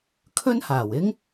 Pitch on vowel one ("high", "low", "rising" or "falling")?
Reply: high